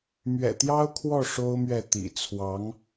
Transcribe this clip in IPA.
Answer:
mɥɛ̰˨˩t̪jɑ˥ʊ̯ kʰwɔ˥˩ ʂo˥ʊ̯mɥɛ˥˩ t̪ḭ˨˩ t͡sʰwɑ˧˥ŋ

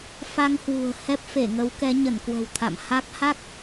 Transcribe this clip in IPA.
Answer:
fa˧ŋhwṳ˨˩ə̯ hɛ˦˥p̚fe˧˩ŋə˨˦w kɛ˨˦ɲə˧˩nkwə̤˨˩w t̪ʰa̰˧˨m ha˦˥k̚ ha˦˥k̚

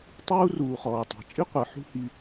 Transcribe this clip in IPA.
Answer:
tˤuː˦ruː˨ χɔː˨tˤɛ̤˨ t͡ʃʼi˦qʷɯ˨ ħṳ˦hi˧

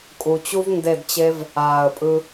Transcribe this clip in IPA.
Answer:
kʼu˨t͡ɕu˦v nde˦˨dt͡ɕe˦v | aː˨ə̯pʼɯ˧

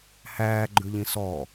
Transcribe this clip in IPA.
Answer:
hæːɡ͡ǃʉʎĩ sɔ

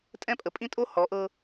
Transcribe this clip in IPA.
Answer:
tʼɛ̃˦˨pʼə˨ pʼĩ˦tʼo˦ hɔ˨˦ʔɤ˦

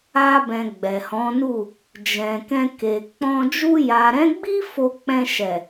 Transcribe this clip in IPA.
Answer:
a˧bɛ̃˨ ɡ͡bɛ˨hɔ̃˨˦nu˦˨ | d͡ʒɛ̃˨kɛ̃˧ke˨ k͡pɔ̃˧ d͡ʒu˧ja˨ɾɛ̃˨˦ɡ͡bi˦ fo˧k͡pɛ̃˧ʃɛ˨

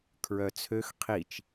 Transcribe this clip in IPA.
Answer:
kʰɹœt͡sʰøx qʰit͡ʃ

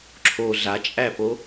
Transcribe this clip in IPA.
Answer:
ǁʰo ɮat͡ʃʼæpo

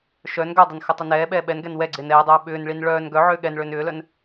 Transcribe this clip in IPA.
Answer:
ʃœn ɡœdˤœn xɘtˤœnɛːɓɛː ɓɛnɡɛn wɛɡ͡ǀɪːn ɛːdˤœː ɓʏːnɭin ɭœːn ɡœʕʏː ɠɛnɭʏːn ʏːlœn

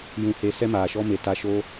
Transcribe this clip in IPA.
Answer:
jũ˨he˨˦ sɛ˦maː˨ʃɔ˦me˨ ta˧ʃo˦

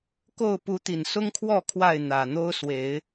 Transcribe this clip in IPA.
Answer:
ko˥˨ʊ̯ pu˨˦t̪i˨˩nsʊ˦ŋkʰwɔ˥˨ kʰwa˥˨ɪ̯n̪ä˨˩n̪o˦ʊ̯ swe˨˦ɪ̯

